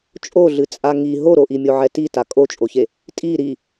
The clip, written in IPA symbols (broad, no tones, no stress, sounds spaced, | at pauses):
t͡ʃʼ o ɮ ɨ t͡sʼ a ŋ i ɦ o ɾ o ʔ i mʲ o ʕ ɛ t i t a kʼ o t͡ʃʼ o ç e | tʼ i ɾ i